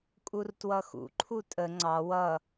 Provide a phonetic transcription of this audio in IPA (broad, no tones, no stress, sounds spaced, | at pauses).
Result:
kʼ u r t w ʌ x ṵ ǃʰ u tʼ ə ŋ͡ǀ ɑ w ʌ